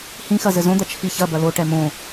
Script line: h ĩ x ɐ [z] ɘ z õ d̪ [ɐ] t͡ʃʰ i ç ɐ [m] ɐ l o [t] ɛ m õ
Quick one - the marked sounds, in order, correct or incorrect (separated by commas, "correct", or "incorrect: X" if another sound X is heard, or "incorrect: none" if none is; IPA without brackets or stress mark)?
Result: correct, correct, incorrect: b, incorrect: ʈ